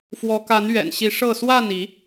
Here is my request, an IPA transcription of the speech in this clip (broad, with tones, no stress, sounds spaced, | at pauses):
f w ɔ˨˦ k a˨˦ n ɥ ɛ̰˨˩ n ɕ i˨˦ ʂ ɤ˥˨ s w a˥˨ n i˨˦